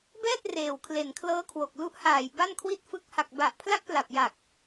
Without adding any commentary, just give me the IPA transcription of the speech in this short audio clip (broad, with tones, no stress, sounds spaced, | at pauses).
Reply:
b ɛː˥˩ t̚ r eː˨˩ w kʰ l e˨˩ n kʰ l ɤː˦˥ kʰ w o˨˩ k̚ l u˦˥ ʔ h aː˨˩ j b a˥˩ n kʰ w i˥˩ t̚ f ɯ˦˥ k̚ h a˨˩ k̚ b a˨˩ ʔ pʰ l a˦˥ k̚ p l a˨˩ p̚ j a˨˩ k̚